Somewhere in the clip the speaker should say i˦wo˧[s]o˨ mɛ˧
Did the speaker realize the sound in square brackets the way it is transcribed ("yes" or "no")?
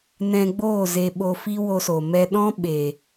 yes